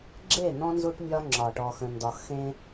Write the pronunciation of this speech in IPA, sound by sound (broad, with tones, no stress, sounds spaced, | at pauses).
ɡ͡ǁ e˦˨ n̪ ɔ̃˦ n z u˦ ʈ mʲ ɒ˦ ŋ͡ǁ ɒ˨ ʈ ɔ˨ x ə̃˨ n d ɒ˨ x ẽ˦